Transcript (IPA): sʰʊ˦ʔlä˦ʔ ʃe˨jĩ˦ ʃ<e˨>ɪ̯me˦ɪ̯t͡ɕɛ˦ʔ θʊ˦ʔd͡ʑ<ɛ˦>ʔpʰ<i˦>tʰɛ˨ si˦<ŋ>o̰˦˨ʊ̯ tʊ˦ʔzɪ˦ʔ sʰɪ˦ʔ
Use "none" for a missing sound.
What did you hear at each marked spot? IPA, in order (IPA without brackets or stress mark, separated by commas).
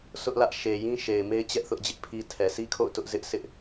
e˨, ɪ˦, i˦, kʰ